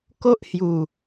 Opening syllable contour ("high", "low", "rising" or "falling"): high